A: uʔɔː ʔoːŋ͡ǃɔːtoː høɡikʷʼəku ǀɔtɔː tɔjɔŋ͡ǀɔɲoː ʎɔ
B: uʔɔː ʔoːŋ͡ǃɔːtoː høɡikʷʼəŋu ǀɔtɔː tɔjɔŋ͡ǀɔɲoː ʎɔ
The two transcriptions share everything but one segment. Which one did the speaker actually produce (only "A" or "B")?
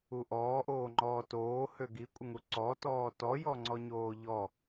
B